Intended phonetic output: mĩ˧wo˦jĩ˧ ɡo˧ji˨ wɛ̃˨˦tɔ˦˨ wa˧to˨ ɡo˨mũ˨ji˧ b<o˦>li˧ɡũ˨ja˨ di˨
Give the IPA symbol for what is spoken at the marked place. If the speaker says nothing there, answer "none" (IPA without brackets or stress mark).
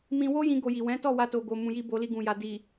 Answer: o˧